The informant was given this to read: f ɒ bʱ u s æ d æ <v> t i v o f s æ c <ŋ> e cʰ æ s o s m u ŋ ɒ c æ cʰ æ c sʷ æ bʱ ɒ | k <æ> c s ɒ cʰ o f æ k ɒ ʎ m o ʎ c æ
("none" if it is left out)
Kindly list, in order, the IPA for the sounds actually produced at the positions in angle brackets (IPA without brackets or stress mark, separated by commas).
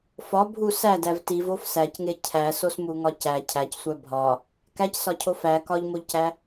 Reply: v, ŋ, æ